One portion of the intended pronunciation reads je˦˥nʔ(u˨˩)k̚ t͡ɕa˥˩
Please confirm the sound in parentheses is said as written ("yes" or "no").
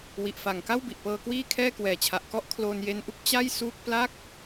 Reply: no